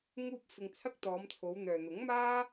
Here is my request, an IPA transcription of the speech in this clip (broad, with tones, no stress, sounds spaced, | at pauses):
ŋ uː˧ p̚ f ɪ˧ ŋ t͡sʰ ɐ˥ k̚ t̪ ɔː˨˧ m t͡sʰ o˨˧ w n̪ œː˨ n̪ ʊ˨˥ ŋ m aː˥